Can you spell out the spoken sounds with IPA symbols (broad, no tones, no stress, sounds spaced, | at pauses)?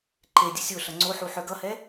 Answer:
ǃ e dʲ ə sʲ o ɬ ʌ ŋ͡ǀ o ħ u ħ œ ɡ ʌ h ɛ